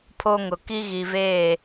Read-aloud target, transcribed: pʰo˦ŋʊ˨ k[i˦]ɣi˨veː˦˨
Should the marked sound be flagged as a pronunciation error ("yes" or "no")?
no